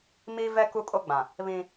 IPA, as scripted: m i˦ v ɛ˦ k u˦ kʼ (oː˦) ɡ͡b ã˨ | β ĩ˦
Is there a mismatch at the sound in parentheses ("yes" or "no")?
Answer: yes